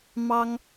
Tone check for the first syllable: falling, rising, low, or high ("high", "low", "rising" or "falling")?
high